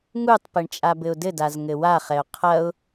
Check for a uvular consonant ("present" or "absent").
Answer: present